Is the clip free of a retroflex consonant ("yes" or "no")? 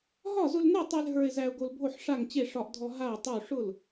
no